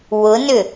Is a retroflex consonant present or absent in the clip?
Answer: absent